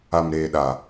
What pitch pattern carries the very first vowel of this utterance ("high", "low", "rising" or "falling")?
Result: low